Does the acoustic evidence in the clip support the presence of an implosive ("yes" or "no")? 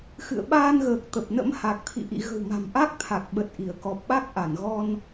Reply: yes